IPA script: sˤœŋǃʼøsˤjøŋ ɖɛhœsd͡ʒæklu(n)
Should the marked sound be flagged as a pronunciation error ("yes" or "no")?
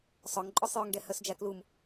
yes